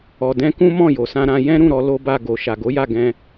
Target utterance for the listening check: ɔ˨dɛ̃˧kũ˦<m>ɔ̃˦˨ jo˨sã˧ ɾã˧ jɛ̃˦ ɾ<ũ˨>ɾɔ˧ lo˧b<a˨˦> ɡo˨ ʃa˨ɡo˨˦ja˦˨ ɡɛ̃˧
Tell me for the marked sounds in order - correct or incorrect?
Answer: correct, incorrect: ũ˦˨, incorrect: a˧

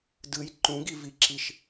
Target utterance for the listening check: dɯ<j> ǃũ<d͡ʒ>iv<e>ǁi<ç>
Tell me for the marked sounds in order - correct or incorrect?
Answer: correct, incorrect: ɡ, incorrect: i, incorrect: ʃ

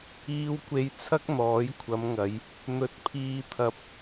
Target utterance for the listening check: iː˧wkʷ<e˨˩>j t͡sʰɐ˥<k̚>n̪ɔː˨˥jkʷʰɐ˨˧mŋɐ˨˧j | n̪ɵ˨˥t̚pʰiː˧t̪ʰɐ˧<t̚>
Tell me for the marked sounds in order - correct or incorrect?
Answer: incorrect: e˧, correct, incorrect: p̚

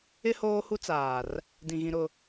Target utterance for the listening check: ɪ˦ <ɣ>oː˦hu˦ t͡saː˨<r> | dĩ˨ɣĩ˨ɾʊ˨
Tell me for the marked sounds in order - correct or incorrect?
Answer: incorrect: h, correct

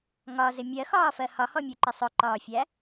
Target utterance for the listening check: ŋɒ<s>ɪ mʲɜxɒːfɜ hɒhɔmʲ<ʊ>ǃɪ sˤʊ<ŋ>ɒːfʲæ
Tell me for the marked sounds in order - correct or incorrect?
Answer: incorrect: z, incorrect: u, incorrect: ǃ

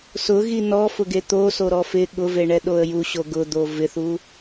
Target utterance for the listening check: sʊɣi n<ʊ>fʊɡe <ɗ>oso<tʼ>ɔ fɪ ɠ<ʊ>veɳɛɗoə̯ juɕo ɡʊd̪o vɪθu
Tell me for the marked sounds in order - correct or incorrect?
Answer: incorrect: ɔ, incorrect: t̪, incorrect: ɾ, correct

